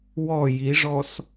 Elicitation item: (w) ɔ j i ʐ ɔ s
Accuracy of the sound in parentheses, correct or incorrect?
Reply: correct